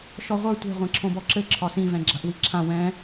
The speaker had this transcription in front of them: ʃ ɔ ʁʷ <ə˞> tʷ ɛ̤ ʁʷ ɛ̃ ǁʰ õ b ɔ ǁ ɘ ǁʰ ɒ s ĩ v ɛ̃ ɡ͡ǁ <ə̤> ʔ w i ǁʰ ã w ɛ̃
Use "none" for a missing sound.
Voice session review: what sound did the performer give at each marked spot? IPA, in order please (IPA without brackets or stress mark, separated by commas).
ə˞, a̤